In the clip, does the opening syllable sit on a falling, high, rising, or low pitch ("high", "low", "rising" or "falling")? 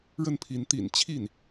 falling